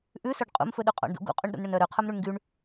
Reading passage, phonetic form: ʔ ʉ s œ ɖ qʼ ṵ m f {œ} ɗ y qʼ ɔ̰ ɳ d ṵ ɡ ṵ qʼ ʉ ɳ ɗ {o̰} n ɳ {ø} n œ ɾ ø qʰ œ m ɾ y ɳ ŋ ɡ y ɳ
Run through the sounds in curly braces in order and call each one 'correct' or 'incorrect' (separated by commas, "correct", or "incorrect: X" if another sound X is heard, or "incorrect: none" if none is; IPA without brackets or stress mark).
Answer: incorrect: ɵ, incorrect: ṵ, incorrect: ɵ